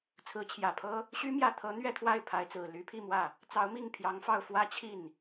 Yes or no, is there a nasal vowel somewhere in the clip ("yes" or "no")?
no